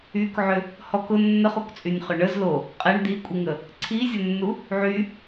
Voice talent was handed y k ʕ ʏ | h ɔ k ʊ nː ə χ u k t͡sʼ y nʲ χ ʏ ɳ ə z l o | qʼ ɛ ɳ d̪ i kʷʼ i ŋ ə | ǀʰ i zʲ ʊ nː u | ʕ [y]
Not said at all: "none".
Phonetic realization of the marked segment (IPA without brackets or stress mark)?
y